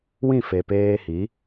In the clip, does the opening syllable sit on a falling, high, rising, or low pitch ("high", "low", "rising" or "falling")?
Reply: falling